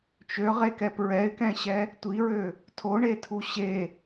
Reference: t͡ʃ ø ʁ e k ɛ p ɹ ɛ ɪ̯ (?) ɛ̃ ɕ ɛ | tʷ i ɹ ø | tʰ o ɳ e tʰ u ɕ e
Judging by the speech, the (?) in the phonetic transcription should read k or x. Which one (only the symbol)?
k